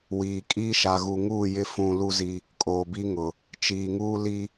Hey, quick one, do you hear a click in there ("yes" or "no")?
no